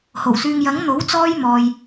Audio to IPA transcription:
h o˨˩ w s yː˧ ŋ j ɐ˨˥ ŋ n̪ o˨˥ w t͡s ɔː˥ j m ɔː˨ j

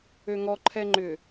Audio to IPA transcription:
ø ŋ ɔ ǃʰ ɛ ŋ͡ǃ ʏ

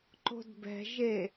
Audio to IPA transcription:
ǃ o̤ d b ɛ̤ ʒ e

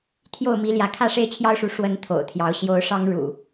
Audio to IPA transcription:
t̪ʰ j o˥˨ ʊ̯ m i˨˦ l j ä˨˦ kʰ ä˥˨ ʂ e˦ ɪ̯ t͡ɕʰ j ɑ˦ ʊ̯ ʂ u˨˦ ʂ w ə˨˦ n t̪ʰ o̰˨˩ ʊ̯ t̪ʰ j ɑ˨˦ ʊ̯ ɕ j o˨˦ ʊ̯ ʂ ɑ˦ ŋ ɻ ṵ˨˩

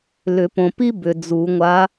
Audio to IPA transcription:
l ʏ˨˩˦ p õ˨ p i˥ b ʏ˨ d͡z u˨˩˦ ŋʷ a˧˥

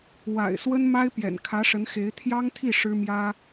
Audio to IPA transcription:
w a̰˨˩ ɪ̯ s w ə˥ n m a˥ ɪ̯ p j ɛ̰˨˩ n kʰ ä˧˥ ʂ ə˧˥ n x e˧˥ ɪ̯ t̪ʰ j ɑ˥ ŋ t̪ʰ i˥˩ ʂ ɻ̩˥ m j ä˥

